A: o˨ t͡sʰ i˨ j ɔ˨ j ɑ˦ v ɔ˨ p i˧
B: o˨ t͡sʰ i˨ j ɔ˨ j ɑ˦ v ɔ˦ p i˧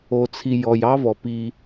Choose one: A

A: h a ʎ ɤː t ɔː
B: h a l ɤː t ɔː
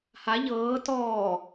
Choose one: A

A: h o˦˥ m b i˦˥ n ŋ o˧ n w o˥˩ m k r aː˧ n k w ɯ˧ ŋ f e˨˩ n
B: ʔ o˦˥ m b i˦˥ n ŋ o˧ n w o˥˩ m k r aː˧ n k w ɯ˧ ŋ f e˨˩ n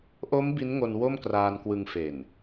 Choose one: B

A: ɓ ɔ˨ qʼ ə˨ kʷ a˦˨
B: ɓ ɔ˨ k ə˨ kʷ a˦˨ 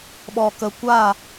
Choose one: B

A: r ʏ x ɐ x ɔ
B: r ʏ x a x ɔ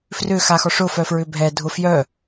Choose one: B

